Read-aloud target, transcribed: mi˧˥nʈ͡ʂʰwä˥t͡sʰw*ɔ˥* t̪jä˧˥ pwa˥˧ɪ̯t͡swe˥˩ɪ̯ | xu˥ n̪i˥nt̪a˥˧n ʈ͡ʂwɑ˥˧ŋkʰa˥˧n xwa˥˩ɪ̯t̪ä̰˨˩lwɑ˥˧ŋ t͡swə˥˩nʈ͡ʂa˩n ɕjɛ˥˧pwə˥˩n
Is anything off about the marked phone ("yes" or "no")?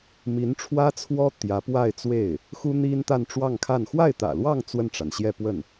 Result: no